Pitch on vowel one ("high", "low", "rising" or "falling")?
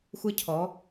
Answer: rising